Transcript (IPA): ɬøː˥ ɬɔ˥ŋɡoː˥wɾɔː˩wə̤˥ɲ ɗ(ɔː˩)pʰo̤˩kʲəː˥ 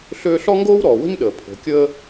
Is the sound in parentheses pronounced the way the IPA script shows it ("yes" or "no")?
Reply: no